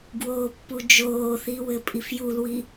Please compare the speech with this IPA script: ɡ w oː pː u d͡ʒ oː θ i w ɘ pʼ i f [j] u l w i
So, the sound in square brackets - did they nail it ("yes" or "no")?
yes